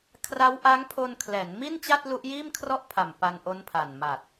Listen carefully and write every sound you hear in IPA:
kʰra˦˥wʔa˦˥ŋpʰo˧n kʰlɛː˩˦nmi˥˩nt͡ɕa˥˩t̚ lu˦˥ʔjiː˥˩mkʰrɔ˥˩ʔ pʰa˨˩m pa˧nʔo˦˥npʰa˨˩n ma˨˩t̚

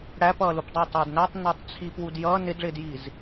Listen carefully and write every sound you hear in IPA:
ɽæpʌːlupdˤæ tˤəːdnætˤ nɑtˤt͡sʰip wudjʌː nɪdɭɪːdjiz

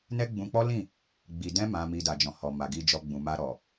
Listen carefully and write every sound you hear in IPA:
nɛ˦ɡ͡bũ˧k͡pɔ˦lĩ˦˨ | ɡ͡bi˨ dɛ̃˧mã˨mi˨ da˨d͡ʒɔ̃˨hɔ˨ma˨ ɡi˨d͡ʒɔ˨ ɡ͡bũ˨ma˧ ɾɔ˨

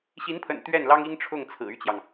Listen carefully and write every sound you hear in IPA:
ɕi˧˥npʰə̰˨˩n t̪ɥɛ˥˩nlɑ˥ŋi˥ŋ ʈ͡ʂʰʊ˥˩ŋt͡sʰɹ̩˨˩y˥˩t͡ɕjɑ˩ŋ

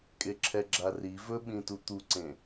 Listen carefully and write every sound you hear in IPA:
kʼeǁʰɛɡ͡ǁari vɵɓĩtu t̪uǀẽ

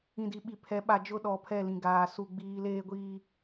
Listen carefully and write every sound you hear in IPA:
ĩ˨di˨ɓi˨pʰɛ˨˦ ɓa˨d͡ʒʊ˦ɗɔ˨ pʰɛ˦˨lĩ˨ɡaː˨ su˦ɡ͡biː˦ leː˦ɡʷiː˦

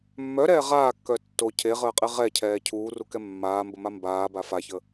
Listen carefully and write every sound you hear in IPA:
mːœɾɛː ʁaːkːœ tːo cʰeʁəːqʼe ʁɛcʰɛː cʰuːrukɛ mːaːmbəma mbaːba façə

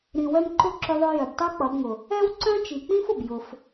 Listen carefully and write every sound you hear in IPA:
ɾĩ˨wœ˧mǃʊ˦˨ ǁʊ˦ðˤʊ˦ jœ˨btˤo˦k͡pʌ˨˦bŋʊ˨ | ɛ˦wǀœ̃˦t͡ʃi˨k͡pĩ˦f ʊ˨bjʊ˧f

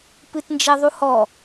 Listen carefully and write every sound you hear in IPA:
pɨtnd͡ʒɛðˤuhɔ

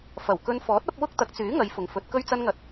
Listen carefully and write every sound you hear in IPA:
fɐ˨˩w kɵ˧nfɔː˨˥t̚ ɐ˨˥p̚wʊ˥k̚ t̪ɐ˨˥k̚t͡syː˨˥ ŋɐ˨˧jfʊ˨˩ŋ fɵ˨˥t̚kɵ˥ɥt͡sɐ˥nŋɐ˧t̚

